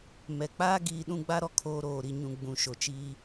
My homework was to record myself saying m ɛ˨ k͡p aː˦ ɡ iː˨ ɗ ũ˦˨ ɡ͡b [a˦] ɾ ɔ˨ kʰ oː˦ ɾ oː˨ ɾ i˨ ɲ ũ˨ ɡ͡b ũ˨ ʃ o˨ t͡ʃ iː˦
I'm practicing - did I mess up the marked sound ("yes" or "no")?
no